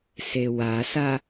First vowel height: mid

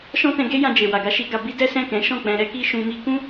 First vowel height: mid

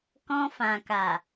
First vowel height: mid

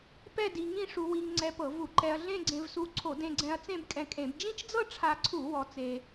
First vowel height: mid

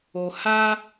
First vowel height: mid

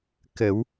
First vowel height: mid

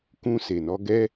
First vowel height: high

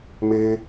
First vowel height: mid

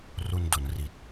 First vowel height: high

